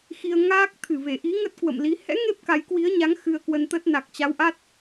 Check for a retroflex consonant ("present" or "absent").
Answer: absent